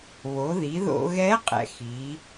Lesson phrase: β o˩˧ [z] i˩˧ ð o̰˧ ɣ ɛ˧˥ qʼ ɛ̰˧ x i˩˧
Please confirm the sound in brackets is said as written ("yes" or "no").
no